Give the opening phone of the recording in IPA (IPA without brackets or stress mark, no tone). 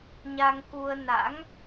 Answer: ɲ